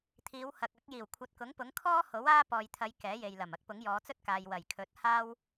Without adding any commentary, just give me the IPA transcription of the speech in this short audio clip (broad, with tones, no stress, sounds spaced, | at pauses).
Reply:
t̪ʰ iː˨˧ w h ɐ˨ k̚ ɐ˨˥ k̚ j iː˨˩ w kʷʰ ɐ˨˥ t̚ k ʊ˨˥ ŋ p ʊ˨˥ ŋ kʰ ɔː˥ h o˨˥ w aː˥ p ɔː˨ j t̪ʰ ɐ˨˧ j k ɛː˨˥ j e˨ j l ɐ˨˩ m ɐ˥ k̚ p ʊ˨˥ ŋ j ɔː˨˧ t͡s ɵ˥ t̚ k aː˨ j w ɐ˨˩ j kʰ ɵ˨˥ t̚ h aː˥ w